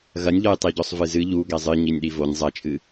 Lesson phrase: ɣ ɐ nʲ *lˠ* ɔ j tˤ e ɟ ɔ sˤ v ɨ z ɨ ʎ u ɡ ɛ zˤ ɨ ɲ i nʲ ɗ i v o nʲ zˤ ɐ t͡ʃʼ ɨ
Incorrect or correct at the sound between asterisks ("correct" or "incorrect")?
incorrect